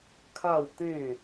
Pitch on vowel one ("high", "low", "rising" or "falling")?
falling